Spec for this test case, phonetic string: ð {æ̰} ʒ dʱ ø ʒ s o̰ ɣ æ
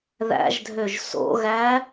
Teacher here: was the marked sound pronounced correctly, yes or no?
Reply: yes